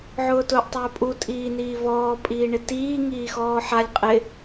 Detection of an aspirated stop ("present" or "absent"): absent